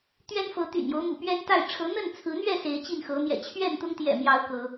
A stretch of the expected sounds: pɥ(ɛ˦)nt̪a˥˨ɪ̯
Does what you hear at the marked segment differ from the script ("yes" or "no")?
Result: no